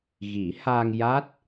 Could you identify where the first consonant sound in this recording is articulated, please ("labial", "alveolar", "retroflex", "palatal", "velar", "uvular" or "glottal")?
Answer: velar